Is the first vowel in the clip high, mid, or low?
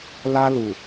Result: low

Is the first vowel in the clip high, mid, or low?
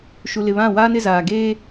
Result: high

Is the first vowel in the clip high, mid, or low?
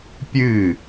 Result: high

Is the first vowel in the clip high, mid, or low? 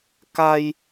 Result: low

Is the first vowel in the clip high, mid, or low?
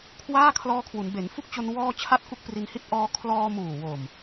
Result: low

